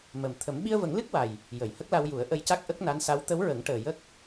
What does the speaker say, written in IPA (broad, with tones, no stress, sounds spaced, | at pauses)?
m ə˨˩ m t̪ʰ ə˨˩˦ m ɓ i˧ ə̯ v ə˨˩˦ ŋ l ɨ˦˥ k̚ w a˨˩ j | j ə˨˩˨ j h ə˦˥ k̚ l a˧ w j u˨˩˦ ə̯ ʔ ə˧ j c a˦˥ k̚ ʔ ə˦˥ k̚ n a˧˥ n s a˧˥ w t̪ ə˧˥ w ɹ ə˨˩˦ ŋ ʈ əː˨˩ j ə˦˥ k̚